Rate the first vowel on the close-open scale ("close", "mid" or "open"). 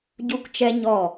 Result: close